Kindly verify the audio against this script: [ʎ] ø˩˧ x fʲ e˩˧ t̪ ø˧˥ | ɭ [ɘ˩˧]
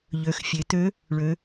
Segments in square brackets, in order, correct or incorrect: correct, incorrect

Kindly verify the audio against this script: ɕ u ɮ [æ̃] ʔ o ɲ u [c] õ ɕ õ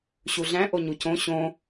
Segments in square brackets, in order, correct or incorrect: correct, correct

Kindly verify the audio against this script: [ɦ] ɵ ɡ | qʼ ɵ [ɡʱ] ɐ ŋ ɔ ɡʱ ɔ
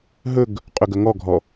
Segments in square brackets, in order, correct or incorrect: correct, incorrect

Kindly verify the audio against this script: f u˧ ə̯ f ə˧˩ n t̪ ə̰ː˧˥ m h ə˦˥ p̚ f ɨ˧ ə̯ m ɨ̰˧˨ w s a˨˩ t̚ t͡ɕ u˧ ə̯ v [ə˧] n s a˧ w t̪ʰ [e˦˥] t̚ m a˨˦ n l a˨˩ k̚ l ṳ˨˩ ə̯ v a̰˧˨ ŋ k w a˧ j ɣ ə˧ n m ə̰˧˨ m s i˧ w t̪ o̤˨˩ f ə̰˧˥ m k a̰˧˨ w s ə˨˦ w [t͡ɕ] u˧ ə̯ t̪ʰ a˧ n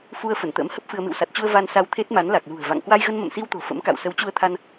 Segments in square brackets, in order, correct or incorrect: incorrect, correct, correct

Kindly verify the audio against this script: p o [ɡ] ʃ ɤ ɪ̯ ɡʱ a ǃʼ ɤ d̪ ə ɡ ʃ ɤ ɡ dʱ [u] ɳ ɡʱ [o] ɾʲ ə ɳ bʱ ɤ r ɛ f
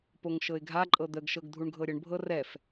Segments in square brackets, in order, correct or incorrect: incorrect, correct, incorrect

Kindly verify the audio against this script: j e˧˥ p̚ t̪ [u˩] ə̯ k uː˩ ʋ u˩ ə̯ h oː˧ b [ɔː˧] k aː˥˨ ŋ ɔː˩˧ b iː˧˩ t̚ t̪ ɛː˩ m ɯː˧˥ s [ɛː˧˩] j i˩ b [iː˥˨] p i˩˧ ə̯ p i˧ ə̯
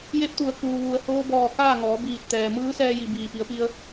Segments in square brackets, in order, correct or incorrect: correct, incorrect, incorrect, incorrect

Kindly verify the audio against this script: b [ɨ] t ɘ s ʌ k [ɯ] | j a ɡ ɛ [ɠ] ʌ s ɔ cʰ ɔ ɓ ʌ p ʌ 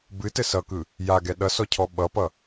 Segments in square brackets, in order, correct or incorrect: correct, correct, incorrect

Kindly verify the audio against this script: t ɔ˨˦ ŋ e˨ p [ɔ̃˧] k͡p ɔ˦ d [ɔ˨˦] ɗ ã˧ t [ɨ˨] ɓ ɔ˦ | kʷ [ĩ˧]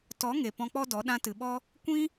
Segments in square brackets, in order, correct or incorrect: correct, correct, correct, incorrect

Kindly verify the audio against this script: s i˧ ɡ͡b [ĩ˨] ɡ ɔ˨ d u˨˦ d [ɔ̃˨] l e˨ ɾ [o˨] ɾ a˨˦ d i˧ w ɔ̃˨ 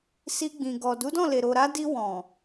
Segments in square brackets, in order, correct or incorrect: correct, incorrect, correct

